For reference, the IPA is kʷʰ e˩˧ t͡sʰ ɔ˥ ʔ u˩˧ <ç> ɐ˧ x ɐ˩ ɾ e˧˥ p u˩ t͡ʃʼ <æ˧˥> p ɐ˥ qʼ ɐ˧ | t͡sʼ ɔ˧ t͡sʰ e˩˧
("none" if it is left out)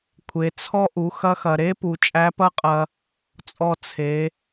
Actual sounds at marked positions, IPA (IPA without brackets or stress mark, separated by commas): x, æ˧˥